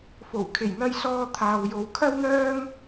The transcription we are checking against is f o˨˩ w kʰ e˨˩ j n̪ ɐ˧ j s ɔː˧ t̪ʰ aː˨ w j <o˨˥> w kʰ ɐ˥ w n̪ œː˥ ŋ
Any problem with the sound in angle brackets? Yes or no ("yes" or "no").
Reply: yes